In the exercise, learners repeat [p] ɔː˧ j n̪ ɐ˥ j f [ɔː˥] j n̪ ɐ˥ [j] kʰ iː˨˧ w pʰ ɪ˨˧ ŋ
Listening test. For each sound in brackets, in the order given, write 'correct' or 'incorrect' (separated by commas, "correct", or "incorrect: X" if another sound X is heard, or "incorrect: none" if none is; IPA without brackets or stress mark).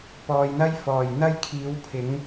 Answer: correct, incorrect: ɔː˨, correct